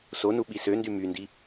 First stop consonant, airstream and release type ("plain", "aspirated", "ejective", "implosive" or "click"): implosive